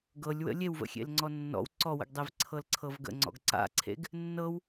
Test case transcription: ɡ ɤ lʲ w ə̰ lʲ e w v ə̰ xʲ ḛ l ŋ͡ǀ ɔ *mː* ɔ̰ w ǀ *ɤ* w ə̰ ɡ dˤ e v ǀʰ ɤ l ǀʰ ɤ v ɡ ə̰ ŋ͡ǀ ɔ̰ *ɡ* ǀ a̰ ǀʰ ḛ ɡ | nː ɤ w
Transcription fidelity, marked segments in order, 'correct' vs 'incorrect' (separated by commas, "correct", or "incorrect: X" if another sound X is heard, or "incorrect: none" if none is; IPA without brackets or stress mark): incorrect: nː, incorrect: ɔ, correct